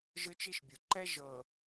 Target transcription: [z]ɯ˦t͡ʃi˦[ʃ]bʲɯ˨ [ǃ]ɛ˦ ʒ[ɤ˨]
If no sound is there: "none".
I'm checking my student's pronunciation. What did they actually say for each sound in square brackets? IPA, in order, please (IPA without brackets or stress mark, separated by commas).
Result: ʒ, ʃ, ǃ, ɤ˨